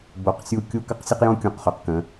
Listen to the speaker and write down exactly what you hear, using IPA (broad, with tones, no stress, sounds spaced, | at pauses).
b o˨ q sʲ u˦ kʲ u˦ k ə˦ q sʲ ə˦ q j õ˦ kʲ õ˨˦ q χ ʏ˨ q k ə̃˨˦